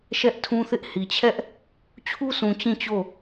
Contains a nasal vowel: yes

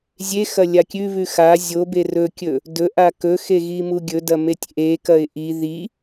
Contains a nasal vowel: no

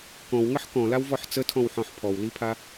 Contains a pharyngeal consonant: yes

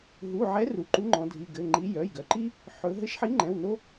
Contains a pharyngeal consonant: yes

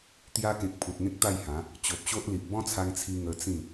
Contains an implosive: no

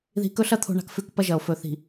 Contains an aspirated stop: yes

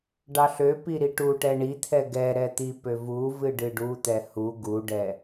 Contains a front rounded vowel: yes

